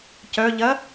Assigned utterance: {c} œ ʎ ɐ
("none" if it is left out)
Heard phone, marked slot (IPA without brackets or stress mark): c